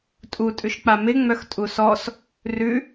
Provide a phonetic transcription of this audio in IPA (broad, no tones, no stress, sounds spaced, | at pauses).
tʼ u tʼ ʉ ʃ k͡p a m ɪ ŋ͡m œ x tʼ u s ɔ s | r ʉ